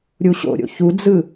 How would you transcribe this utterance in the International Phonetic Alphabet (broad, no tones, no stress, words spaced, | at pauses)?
ɾʲuɕo̰ɾʲo̰ çud͡zɯ